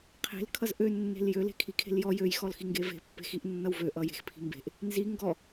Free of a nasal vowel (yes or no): yes